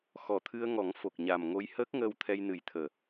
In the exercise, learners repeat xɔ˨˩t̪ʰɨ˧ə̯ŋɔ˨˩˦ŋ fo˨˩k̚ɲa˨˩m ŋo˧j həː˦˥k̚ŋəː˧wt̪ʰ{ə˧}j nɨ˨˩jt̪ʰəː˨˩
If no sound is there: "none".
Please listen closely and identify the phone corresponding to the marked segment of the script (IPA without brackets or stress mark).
ɛ˧